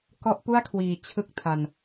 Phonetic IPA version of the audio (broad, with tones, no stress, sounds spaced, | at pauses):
k ɔ˦˥ ʔ p u˥˩ a̯ kʰ w iː˨˩ t͡ɕʰ ɯ˥˩ k̚ tʰ a˧ n